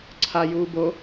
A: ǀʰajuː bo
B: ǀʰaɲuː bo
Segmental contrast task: A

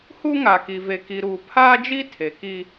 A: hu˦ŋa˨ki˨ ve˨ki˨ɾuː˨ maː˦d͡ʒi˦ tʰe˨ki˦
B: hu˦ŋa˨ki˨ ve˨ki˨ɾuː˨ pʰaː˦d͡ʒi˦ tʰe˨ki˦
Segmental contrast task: B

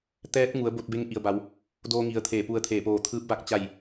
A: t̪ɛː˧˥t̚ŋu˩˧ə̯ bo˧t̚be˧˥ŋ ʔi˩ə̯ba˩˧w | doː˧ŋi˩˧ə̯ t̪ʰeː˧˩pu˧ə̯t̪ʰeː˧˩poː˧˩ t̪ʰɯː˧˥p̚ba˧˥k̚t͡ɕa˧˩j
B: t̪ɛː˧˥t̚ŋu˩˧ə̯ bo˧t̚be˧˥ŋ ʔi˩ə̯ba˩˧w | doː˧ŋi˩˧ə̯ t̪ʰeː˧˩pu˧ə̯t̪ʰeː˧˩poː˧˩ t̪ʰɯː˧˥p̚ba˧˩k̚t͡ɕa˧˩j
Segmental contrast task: A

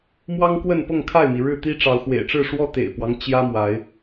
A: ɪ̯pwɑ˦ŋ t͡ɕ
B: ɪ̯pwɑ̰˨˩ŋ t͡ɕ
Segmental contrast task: A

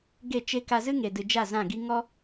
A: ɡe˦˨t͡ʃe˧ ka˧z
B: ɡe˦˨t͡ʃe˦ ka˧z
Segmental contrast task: B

